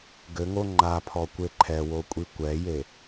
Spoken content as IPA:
ɡ ɘ ŋ o ŋ͡ǃ a pʰ ɔ kʷ e ǃʰ ɛ w o kʷʼ i kʷ ɛ j e

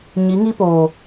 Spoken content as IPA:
ɲ i˨˦ ŋ i˦ p oː˨

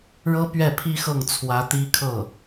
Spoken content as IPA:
ɻ ɤ˥ p ɥ ɛ˥˩ pʰ i˥ x ɤ˥˩ ŋ t͡sʰ w ä˧˥ t̪ i˥ kʰ ɤ˥˩

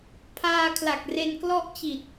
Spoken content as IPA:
pʰ aː˧ kʰ l a˨˩ k̚ r e˧ n k l ɔ˥˩ ʔ t͡ɕ i˨˩ t̚

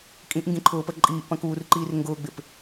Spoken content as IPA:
kʼ ĩ ʔ ŋ ɡ ĩ ǃʰ ʊː p ə ǃʼ iː ʔ p ɐ̃ k uː r ǃ iː r ŋ ɡ ʊː ɡ͡b ɪ p

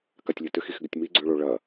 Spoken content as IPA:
k a tʲ lʲ ɘ t ʏ x i x ɡ ʏ tʲ m i ɡ͡ǀ ø ɭ o ɭ ɐ

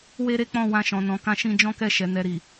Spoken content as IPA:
w e˦ ɾ e˦ k͡p ɔ̃˦˨ w ã˧ ʃ ɔ̃˨ n ɔ̃˨ k ã˧ ʃ ĩ˧ d͡ʒ ɔ̃˦ k ɛ˦˨ ʃ ɛ˨˦ n ɛ˧ ɾ i˨

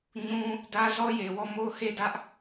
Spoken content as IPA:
ɲ ũ˦ | d ä˦ z ɔ˦ j e˨ w ɔ˦˨ m o˦˨ ʊ̯ h e˦˨ d ä˦ ʔ

